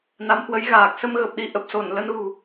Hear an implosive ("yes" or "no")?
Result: yes